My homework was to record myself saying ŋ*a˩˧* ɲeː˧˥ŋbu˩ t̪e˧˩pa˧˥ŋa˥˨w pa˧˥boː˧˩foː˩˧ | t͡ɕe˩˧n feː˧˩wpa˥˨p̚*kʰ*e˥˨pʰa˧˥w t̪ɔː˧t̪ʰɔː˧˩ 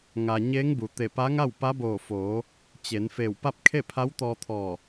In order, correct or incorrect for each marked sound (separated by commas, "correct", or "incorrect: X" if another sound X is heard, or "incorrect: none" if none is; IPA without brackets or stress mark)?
incorrect: a˩, correct